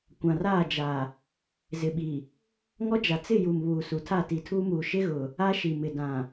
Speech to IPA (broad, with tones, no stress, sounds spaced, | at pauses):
kʷ ã˨ r aː˦˨ d͡ʒ a˨ | z ɪ˨ ɓ i˨ | ŋ ɔ˦ d͡ʒ a˨ t͡s ɪ˦˨ j u˨ m β uː˨ s u˨ tʰ a˦˨ t i˨ tʰ uː˦ m uː˨ ʃ ɪ˦ ɣ ʊ˨ | a˦ ʃ i˨ m ɪ˨ d ã˨